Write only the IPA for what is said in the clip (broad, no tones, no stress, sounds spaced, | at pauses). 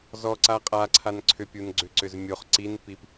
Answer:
z ɔ ǀ a qʼ a ǀʰ a n ǀʰ ʏ pʲ u n ɡ͡ǀ ʏ ǀ ʏ z mʲ o χ ǀ i n p i p